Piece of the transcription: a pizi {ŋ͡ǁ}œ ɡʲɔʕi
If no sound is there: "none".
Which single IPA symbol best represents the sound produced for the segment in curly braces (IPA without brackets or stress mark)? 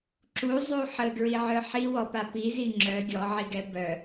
ŋ͡ǁ